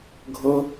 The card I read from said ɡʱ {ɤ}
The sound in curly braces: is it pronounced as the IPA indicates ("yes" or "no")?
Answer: yes